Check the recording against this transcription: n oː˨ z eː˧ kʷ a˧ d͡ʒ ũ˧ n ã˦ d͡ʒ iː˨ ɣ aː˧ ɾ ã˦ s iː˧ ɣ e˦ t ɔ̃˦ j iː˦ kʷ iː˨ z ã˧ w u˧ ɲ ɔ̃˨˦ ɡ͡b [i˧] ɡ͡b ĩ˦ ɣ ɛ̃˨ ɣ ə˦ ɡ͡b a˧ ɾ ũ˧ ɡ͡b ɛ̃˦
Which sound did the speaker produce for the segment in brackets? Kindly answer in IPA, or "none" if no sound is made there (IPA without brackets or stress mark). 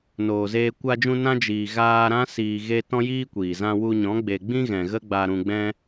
e˧